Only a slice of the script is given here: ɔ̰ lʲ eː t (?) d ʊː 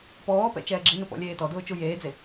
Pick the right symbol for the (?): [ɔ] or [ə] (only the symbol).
ɔ